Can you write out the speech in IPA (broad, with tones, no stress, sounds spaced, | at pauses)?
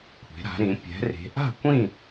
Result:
kʷʰ e̤˩˧ ɾ a̤˩˧ ɾ ĩ˩˧ pʲ ɛ̤˩˧ r e̤˩˧ ʔ a̤˥˨ kʷ ĩ˥˨